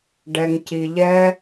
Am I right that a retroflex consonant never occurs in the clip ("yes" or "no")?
no